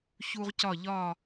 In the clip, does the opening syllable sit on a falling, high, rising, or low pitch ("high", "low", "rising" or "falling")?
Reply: high